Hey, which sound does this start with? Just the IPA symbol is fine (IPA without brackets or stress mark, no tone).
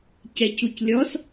c